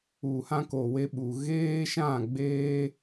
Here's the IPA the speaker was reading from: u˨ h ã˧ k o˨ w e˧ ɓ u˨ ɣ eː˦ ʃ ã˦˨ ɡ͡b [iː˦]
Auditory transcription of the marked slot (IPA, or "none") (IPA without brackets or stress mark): eː˦